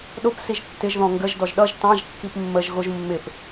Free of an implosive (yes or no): no